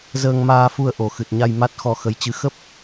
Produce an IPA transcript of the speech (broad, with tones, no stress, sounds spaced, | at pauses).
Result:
z əː˧ ŋ m aː˧ f u˧ ə̯ ʔ o˨˩ x ɨ˨˩ t̚ ɲ a˧ j m a˦˥ t̚ x ɔ˧ x ə˨˦ j t͡ɕ ɨ˨˦ x ə˦˥ p̚